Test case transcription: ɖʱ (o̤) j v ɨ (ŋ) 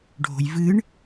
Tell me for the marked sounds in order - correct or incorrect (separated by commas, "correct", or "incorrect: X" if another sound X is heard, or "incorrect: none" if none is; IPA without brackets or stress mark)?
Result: correct, incorrect: ɳ